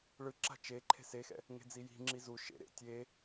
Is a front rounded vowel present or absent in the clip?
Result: absent